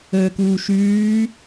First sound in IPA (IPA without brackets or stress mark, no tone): əː